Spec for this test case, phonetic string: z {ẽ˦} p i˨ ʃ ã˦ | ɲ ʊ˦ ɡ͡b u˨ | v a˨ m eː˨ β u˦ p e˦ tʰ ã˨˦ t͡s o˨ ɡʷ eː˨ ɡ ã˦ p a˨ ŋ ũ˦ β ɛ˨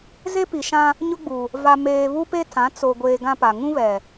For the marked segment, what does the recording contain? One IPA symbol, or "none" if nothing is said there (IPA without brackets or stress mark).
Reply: e˦